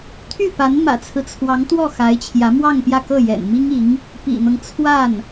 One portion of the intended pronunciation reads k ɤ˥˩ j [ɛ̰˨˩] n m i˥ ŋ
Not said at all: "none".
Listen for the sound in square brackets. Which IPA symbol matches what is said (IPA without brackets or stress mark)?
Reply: ɛ̰˨˩